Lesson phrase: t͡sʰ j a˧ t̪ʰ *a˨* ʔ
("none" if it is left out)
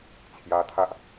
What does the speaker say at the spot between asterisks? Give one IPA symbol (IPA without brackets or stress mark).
a˦